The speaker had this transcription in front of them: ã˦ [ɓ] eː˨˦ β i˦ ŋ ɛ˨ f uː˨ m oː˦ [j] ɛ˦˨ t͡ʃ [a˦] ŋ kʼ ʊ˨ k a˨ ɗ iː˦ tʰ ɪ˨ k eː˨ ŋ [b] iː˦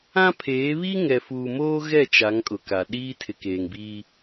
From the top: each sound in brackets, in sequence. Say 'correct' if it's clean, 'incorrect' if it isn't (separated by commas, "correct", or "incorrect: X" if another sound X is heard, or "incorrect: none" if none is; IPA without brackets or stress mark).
incorrect: pʰ, incorrect: ɣ, incorrect: a˨˦, correct